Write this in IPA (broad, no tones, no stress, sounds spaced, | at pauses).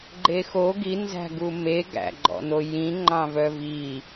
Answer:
ɡ͡ǃ e x o ɡ i n z æ̤ ɡ u m e ɡ æ̰ ɡ͡ǃ ɔ̰ n o j ĩ ŋ͡ǃ ɑ̃ v œ v i